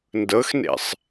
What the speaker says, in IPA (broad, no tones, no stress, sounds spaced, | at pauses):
n d ɤ x n ḛ sˤ